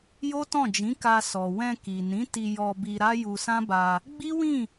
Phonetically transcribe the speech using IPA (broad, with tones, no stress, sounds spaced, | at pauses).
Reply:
j o˦ t ɔ̃˦˨ d͡ʒ ĩ˨˦ k a˧ s ɔ˨ w ɛ̃˧ k i˨ n ĩ˨˦ t i˧ j ɔ˧ b i˧ ɾ a˦ j u˧ s ã˦ b a˧ | ɡ͡b i˦ w ĩ˦˨